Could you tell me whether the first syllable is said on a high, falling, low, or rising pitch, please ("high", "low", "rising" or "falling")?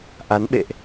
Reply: rising